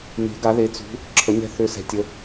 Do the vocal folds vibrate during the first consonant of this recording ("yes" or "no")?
yes